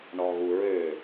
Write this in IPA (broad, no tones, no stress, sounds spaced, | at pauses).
ɳ ɔ ɣ u ɹ ø